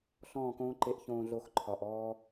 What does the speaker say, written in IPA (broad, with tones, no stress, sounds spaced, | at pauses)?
ɬ ɔ̃ː˦˨ k õː˦ ǃ e˦˨ ʔ ç õː˧ ɮ o˧ x ǃʰ ɒ˨ ʔ ɔː˦